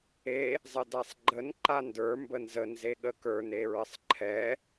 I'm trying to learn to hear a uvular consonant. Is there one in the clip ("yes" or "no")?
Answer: no